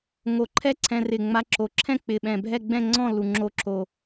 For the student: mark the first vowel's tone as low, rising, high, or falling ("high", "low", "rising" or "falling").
low